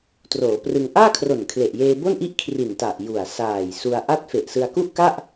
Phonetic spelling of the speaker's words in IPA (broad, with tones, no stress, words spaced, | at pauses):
troː˩˦prɯ˧ŋ ʔaː˥˩kʰro˨˩nkʰle˨˩ʔjeː˧ bo˥˩nʔi˥˩ʔ kʰri˨˩nta˨˩ʔ ju˨˩a̯saː˨˩jsu˧a̯ ʔa˥˩t̚ fe˨˩ʔ sɯ˧a̯ku˥˩ʔka˥˩ʔ